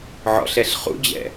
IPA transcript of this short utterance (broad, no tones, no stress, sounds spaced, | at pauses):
ʕ ɔ̰ ɬ ɛ ɬ χ ṵ d͡ʑ ɛ̰